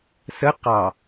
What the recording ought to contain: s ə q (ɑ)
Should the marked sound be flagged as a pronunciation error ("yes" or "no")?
no